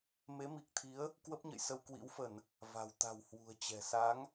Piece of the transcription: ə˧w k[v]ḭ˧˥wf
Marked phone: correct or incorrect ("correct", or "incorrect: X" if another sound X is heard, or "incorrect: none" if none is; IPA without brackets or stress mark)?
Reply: incorrect: w